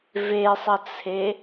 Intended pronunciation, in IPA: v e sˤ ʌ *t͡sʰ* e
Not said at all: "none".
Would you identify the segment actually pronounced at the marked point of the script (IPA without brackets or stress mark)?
t͡sʰ